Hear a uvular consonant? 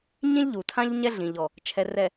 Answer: no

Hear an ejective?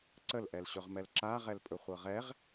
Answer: yes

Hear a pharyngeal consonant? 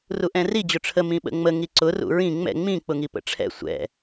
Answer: no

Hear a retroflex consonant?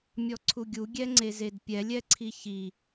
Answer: no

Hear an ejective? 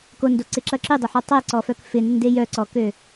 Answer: no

